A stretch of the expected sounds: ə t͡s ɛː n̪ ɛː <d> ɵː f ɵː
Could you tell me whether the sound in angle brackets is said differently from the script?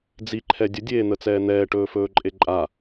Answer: yes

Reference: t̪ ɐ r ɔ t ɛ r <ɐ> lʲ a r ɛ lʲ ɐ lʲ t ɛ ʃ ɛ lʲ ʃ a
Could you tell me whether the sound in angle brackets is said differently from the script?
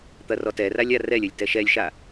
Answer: yes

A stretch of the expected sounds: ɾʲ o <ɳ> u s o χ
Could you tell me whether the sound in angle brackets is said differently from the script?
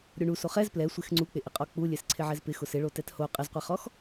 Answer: no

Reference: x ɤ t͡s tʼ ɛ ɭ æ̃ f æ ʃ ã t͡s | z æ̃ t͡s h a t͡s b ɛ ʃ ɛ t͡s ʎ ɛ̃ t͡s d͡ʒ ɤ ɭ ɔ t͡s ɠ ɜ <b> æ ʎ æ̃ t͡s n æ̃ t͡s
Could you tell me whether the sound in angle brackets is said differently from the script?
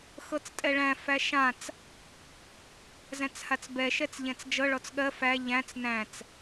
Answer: yes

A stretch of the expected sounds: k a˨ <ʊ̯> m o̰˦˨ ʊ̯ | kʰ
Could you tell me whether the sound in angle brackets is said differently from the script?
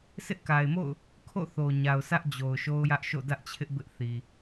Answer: yes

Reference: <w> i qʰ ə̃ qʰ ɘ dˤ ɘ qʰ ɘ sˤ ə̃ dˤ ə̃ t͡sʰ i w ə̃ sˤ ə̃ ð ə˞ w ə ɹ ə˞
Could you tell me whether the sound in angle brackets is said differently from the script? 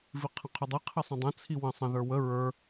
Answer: yes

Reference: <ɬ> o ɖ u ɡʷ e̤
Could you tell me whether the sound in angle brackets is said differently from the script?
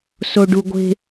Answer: yes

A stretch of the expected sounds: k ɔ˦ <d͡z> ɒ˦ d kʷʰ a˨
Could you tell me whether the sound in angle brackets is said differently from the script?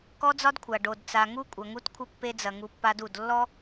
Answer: no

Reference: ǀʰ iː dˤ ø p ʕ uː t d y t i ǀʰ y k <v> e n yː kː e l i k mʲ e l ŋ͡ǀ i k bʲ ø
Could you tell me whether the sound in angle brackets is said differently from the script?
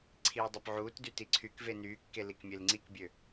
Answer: no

